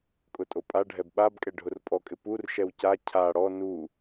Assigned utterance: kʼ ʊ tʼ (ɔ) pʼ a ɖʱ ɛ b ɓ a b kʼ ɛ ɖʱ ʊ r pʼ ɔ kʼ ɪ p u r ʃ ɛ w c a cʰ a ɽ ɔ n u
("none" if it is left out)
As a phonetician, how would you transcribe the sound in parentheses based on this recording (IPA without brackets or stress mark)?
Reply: o